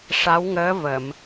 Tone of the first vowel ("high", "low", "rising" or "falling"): rising